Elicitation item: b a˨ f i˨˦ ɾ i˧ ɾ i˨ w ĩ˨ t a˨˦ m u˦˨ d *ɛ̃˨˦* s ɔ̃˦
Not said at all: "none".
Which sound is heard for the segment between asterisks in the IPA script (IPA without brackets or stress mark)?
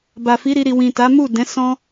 ɛ̃˨˦